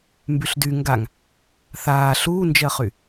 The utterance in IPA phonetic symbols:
m b y ɬ d y ŋ ɡ a ŋ | θ aː ɬ uː n d͡ʒ ɜ χ y

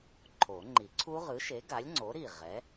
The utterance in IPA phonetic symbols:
ǃʰ o˨˩˦ ŋ͡ǃ i˨˩˦ ǀʰ u˦˥ ʁ ɯ˨˥ ʃ e˨˥ ɡ a˨˥ lʲ ŋ͡ǀ o˨˥ ɾ i˧˩ ʁ ɛ˨˥

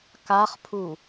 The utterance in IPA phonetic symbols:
k a χ pʰ u

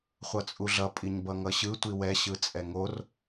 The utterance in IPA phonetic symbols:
χʷ ʌ t͡sʼ u ɮ ʌ pʼ i ɲ b ʌ ŋ ʌ ɕ ɯ tʷ i w ɛ ɕ ɯ t͡sʼ ɛ ŋ o r

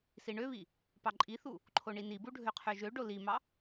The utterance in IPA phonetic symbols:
s i ɳ ø β i | p ɑ ǃʼ i θ u | ǃʰ o ɳ i n i b u ɖʱ ø qʰ ø ʒ ø ɖ o l i m ɑ

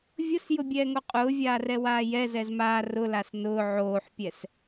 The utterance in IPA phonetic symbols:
vʲ ʊ s j ʊ bʲ ɛː ŋ o qʼ ʊː vʲ aː r ɛ w aː j ɛ z ɛ z m aː r ʊ l a s n ʊː ʕ oː ħ pʲ ɛ s

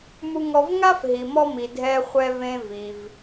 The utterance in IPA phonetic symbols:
m u˧ ŋ ɔ˧ v ŋ a˥ f ɦ i˩ m ɔ˧ m i˩ dʱ ɛ˧ χʷ ɛ˧ v ẽ˧ v i˩ v

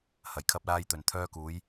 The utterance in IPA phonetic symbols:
h ɐ˨˩ j kʰ ɐ˥ p̚ l aː˥ j t̪ ɵ˨ n t̪ʰ œː˥ k uː˨˥ j

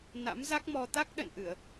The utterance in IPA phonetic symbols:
n a̰˧˥ m z a˦˥ k̚ m ɔ˧ t̪ a˦˥ k̚ ɗ ə̰˧˨ n ʔ ɨ˧˩˨ ə̯

